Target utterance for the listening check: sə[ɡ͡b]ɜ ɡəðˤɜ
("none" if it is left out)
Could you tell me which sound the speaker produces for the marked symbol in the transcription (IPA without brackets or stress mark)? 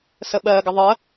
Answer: ɓ